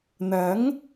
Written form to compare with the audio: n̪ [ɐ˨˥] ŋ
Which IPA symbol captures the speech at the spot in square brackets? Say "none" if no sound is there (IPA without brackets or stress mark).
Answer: ɐ˨˥